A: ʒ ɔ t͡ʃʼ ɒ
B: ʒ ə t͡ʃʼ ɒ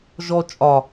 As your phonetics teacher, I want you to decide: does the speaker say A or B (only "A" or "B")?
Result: A